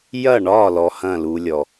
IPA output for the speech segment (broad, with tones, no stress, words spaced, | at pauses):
jɐ˥˩ɳɒ˥˩ lɔ˧hɐ̃˥˩lu˧lʲɔ˩